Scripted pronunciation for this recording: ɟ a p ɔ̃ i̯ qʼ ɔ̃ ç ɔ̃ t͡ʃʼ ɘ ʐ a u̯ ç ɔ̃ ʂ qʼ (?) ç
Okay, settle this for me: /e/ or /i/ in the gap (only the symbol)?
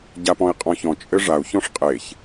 e